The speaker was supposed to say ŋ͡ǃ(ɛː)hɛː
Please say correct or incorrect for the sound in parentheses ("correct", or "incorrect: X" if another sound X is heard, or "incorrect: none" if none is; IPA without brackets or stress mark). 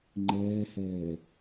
correct